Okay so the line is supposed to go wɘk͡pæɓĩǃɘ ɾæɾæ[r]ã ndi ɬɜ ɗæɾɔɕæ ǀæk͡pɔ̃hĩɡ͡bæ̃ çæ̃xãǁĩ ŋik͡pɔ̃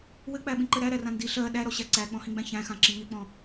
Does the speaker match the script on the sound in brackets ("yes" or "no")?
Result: yes